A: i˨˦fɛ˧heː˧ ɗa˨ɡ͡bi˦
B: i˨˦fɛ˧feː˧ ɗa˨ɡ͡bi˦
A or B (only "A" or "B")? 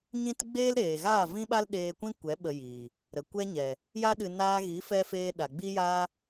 B